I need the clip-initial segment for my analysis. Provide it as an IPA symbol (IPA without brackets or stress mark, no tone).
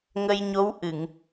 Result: ŋ